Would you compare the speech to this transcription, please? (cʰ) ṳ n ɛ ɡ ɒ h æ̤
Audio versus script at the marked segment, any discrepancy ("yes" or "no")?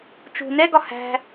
yes